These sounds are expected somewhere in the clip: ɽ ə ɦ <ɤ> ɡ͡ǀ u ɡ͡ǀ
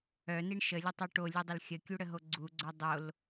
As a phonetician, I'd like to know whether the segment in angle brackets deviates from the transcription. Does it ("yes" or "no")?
yes